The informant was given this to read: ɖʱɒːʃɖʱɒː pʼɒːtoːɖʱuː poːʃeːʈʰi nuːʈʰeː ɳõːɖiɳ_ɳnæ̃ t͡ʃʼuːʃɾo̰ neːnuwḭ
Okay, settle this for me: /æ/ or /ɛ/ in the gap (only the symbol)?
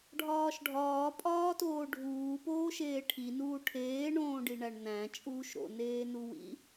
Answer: æ